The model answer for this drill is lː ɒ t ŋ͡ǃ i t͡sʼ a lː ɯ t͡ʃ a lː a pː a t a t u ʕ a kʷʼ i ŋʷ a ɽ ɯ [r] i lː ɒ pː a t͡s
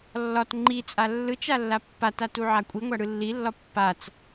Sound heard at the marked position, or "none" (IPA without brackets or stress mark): lː